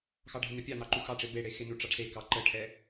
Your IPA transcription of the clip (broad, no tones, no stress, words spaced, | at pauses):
xɑɖʱənə pʲɑn̪ɑǃu xɑʈ͡ʂe beɽe xenu ʈ͡ʂɑɖsekɑ ǃəʈʰɛ